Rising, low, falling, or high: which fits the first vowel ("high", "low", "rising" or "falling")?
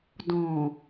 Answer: low